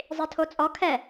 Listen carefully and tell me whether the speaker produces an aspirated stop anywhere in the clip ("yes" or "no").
yes